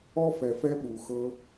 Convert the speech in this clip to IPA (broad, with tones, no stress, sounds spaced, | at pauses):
ɔ˦ f ɛ˨ f ɛ˦ ɓ u˨ x ɤ˧